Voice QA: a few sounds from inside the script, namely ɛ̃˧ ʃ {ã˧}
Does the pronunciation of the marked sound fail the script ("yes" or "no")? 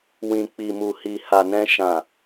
yes